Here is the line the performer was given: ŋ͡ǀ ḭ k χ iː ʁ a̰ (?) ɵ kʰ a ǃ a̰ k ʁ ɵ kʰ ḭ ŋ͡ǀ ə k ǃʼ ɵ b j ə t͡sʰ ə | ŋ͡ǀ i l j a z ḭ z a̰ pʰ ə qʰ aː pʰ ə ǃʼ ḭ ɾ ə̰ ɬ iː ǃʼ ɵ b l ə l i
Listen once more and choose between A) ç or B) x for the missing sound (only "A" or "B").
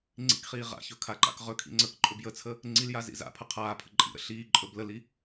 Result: A